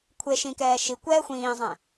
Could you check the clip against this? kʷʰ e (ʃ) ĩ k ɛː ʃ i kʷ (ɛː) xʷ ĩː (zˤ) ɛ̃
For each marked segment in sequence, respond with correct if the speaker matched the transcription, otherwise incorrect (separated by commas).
correct, correct, correct